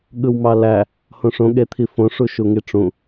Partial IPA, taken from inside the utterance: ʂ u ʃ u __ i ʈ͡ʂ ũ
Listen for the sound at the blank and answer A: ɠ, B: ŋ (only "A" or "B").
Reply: B